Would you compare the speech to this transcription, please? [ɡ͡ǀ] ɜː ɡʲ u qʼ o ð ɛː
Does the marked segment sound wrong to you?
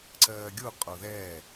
yes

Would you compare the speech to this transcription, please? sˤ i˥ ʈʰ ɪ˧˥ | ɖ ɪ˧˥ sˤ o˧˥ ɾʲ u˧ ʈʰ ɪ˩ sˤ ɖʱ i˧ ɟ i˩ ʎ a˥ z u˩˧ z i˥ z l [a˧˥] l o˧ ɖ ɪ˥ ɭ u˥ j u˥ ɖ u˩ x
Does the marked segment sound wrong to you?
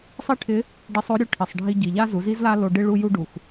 yes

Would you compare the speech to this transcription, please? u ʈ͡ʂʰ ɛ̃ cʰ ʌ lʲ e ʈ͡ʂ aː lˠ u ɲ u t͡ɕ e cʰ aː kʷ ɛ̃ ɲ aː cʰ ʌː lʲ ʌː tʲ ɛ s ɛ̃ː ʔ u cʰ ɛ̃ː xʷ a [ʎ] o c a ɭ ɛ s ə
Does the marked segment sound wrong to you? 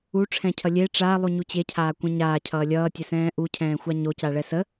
yes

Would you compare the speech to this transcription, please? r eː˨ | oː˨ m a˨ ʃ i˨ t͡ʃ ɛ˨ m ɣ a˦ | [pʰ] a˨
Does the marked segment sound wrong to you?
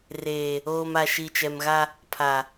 no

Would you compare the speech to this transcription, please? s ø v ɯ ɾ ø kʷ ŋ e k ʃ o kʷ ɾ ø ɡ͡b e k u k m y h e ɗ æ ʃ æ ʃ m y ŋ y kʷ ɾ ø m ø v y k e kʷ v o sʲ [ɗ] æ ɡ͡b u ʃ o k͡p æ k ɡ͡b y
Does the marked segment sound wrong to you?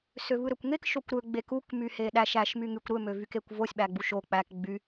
yes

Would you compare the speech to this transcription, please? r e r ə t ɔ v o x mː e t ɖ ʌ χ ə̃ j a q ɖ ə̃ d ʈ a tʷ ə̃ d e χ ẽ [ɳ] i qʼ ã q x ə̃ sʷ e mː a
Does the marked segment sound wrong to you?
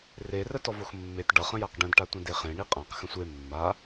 no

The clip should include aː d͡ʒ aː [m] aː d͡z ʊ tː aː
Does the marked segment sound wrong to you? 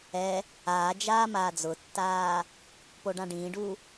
no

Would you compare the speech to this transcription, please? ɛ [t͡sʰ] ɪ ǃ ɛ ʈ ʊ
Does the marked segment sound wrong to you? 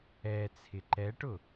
no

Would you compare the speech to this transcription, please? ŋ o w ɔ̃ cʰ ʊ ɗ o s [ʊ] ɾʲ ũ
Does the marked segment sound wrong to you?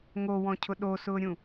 yes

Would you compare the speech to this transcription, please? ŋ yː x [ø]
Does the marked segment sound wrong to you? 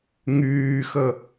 yes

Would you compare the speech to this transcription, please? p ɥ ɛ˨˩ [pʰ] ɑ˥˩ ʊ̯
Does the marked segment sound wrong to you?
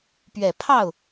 no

